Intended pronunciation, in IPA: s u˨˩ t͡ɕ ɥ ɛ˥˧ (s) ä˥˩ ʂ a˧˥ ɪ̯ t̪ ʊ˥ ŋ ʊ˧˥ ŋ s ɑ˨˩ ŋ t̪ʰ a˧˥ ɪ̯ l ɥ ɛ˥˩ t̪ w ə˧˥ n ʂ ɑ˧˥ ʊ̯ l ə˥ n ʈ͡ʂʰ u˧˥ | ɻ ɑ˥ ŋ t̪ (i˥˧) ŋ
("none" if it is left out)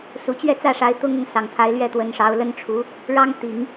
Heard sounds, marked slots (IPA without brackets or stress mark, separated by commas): t͡s, i˨˩˦